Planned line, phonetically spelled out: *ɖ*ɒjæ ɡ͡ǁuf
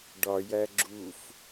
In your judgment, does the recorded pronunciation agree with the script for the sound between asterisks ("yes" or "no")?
yes